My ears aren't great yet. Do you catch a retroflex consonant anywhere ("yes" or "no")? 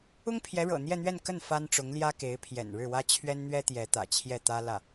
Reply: yes